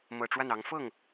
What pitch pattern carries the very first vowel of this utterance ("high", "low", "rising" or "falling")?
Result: low